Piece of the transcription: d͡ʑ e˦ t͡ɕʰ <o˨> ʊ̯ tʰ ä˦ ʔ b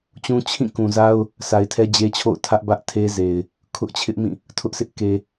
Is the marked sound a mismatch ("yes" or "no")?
yes